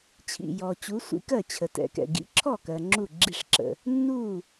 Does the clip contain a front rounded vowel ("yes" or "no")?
no